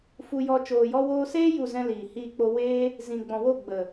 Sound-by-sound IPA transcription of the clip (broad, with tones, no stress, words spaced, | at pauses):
fu˧jɔ˧ t͡ʃoː˨jɔ˧woː˧seː˦ ju˦˨zɛ̃˦ liː˨hiː˧k͡po˧weː˦ | zĩ˨ɡ͡bɔ̃˨wo˦˨ ɡ͡bə˨